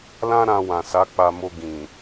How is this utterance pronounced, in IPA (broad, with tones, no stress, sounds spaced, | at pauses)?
l ã˦ ɾ ã˧ w ã˨ s a˨˦ k͡p a˧ m o˧ ɡ ĩ˨